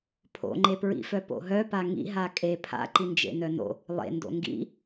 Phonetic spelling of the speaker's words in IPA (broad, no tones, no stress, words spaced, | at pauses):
pʰo̰ŋ͡ǃepɹḭfœ po̰ɦœpa ŋḭɦa kʼe pʰa̰ǃind͡ʒḛ nœno̰ | lˠḛndo̰ ŋɡḭ